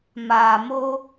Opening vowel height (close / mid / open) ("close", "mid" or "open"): open